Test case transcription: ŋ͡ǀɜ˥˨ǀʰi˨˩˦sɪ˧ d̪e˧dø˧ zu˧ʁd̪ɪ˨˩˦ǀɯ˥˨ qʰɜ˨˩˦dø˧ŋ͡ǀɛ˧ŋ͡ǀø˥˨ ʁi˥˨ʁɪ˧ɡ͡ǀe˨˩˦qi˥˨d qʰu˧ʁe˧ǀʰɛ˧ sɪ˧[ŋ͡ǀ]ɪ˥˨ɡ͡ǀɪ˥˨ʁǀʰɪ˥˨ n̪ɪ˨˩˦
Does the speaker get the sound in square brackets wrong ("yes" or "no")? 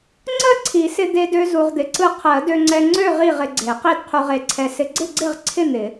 yes